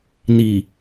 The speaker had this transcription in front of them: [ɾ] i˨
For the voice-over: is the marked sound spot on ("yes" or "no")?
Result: no